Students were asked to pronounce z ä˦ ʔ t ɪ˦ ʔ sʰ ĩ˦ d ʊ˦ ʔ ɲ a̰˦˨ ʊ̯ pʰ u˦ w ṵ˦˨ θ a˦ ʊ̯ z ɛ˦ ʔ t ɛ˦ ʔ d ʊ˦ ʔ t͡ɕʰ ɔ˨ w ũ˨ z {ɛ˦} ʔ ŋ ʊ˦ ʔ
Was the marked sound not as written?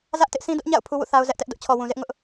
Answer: yes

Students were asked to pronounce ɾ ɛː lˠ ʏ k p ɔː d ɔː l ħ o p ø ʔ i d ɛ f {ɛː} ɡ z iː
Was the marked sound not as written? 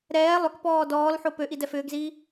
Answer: yes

